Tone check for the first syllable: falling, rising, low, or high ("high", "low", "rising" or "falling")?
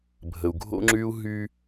low